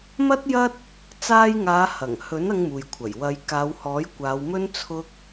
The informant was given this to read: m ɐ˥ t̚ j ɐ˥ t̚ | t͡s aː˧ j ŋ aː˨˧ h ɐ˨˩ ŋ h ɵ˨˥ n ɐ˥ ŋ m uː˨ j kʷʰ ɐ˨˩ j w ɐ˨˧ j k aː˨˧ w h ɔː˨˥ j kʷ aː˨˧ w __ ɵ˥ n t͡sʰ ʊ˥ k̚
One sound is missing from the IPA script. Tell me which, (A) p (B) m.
B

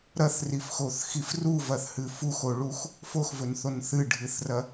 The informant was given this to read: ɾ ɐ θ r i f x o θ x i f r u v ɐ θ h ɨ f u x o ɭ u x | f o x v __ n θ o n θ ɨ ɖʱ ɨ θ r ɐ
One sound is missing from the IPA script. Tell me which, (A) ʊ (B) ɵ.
B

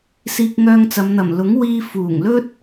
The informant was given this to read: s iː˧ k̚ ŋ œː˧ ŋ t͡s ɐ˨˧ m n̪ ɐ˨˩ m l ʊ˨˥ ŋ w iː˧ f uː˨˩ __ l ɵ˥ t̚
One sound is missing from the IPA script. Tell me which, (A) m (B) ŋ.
B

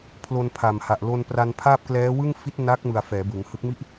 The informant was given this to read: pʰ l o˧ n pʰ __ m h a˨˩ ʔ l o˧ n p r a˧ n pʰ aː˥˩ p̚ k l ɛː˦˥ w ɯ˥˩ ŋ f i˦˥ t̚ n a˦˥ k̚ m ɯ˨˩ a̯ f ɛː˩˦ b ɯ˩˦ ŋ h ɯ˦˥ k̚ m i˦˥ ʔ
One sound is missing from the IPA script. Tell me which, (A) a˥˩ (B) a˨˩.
B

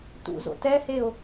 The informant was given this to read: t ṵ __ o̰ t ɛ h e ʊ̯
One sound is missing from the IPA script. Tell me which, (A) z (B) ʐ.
A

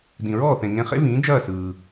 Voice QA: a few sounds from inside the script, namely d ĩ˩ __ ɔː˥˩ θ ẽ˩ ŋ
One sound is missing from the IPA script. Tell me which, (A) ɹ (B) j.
A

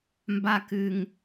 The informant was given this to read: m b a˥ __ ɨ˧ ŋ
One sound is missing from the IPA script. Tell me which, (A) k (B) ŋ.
A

